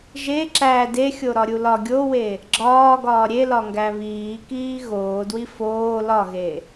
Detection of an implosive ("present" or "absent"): absent